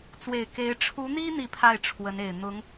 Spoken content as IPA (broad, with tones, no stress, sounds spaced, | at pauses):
t͡s w e˨˩ ɪ̯ k e˧˥ ɪ̯ ʈ͡ʂʰ u˧˥ n̪ i˥ n̪ i˥˧ pʰ a˥˩ ɪ̯ ʈ͡ʂʰ w ə˧˥ n e˨˩ ɪ̯ n̪ ʊ˧˥ ŋ